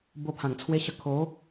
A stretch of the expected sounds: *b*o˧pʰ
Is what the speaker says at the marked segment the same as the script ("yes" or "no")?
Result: yes